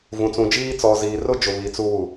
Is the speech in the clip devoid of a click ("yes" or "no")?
yes